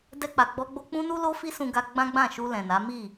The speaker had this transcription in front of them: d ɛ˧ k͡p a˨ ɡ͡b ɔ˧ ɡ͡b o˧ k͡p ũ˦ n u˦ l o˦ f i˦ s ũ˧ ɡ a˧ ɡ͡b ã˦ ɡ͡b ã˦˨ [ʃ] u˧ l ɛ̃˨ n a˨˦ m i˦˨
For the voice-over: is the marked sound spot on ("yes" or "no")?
yes